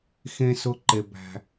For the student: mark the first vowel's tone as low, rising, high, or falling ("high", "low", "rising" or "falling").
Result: high